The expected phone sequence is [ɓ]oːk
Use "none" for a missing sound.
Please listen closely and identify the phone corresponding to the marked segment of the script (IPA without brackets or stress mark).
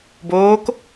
b